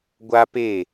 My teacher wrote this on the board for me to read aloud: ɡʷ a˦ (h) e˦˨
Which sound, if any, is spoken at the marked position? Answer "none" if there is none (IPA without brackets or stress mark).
p